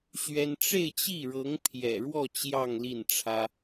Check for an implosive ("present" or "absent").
absent